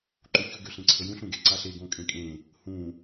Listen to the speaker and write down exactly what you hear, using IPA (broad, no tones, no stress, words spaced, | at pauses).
ǃuçɵ ɡøɬẽǀʰəjũɬ ũɡeǀaɬe ɡõkʼẽkʼẽ | hũ